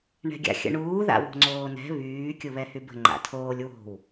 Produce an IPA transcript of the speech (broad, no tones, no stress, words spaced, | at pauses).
ɳɛ̤ɡʲa̰xʲə̰ɳuː ða̰wo̤ŋ͡ǀoːnɛ̤ βyː kʲuβɛhybə̤ ŋ͡ǃa̰tʰoːlʲ wo̤w